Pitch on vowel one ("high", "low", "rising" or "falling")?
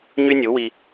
high